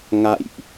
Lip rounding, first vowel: unrounded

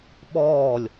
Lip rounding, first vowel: rounded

